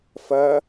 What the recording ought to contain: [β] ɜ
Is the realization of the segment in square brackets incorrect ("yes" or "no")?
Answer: yes